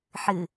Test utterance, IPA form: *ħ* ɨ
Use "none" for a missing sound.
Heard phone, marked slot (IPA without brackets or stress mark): ħ